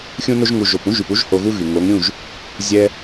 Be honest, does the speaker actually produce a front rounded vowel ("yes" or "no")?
yes